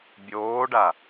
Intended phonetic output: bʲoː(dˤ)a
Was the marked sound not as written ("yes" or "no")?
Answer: yes